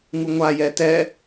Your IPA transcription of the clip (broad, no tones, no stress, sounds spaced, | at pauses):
ŋ u ŋʷ a j ɛ t ɛ